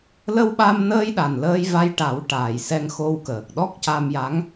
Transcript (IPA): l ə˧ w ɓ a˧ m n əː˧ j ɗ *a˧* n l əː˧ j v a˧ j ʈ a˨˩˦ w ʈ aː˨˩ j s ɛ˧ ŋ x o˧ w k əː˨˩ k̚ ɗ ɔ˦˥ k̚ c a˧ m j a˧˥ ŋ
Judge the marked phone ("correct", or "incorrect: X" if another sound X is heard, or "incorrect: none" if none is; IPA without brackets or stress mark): incorrect: a˨˩